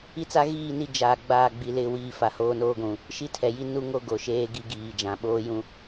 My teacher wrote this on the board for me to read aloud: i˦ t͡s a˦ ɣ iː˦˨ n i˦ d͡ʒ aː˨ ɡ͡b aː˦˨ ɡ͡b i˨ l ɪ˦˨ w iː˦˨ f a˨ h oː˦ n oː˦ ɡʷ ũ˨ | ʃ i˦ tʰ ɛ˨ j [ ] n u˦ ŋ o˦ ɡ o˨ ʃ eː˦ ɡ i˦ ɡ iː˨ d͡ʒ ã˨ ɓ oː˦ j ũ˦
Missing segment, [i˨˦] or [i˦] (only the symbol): i˦